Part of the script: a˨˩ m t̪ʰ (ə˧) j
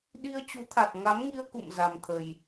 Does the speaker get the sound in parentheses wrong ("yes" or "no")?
yes